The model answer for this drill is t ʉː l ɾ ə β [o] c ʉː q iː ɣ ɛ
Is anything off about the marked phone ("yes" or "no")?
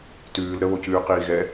no